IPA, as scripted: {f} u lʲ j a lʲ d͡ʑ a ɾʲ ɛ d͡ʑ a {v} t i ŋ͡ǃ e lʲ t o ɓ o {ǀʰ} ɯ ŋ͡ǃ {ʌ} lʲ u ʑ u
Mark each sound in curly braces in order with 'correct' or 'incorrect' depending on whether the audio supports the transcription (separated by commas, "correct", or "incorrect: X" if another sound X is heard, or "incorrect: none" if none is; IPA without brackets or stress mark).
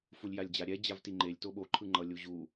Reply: correct, correct, incorrect: ǃʰ, correct